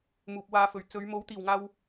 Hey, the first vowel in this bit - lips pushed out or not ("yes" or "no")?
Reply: yes